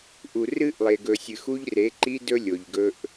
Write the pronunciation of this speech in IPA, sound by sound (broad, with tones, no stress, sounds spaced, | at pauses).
ʔ u˨ r ɨ˦ ʔ lˠ e˨ ɡ ɵ˨ sʲ ɨ˨ x u˦ ʎ r e˨˦ ǃ i˦ d ɵ˦ lʲ o˨ ʎ ɡ ɵ˦ ʔ